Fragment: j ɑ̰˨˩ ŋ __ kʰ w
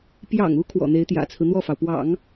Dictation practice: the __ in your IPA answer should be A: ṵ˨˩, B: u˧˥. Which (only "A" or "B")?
B